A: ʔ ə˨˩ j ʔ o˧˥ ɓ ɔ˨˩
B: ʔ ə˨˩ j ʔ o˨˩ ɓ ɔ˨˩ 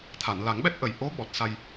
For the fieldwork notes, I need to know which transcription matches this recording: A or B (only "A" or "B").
A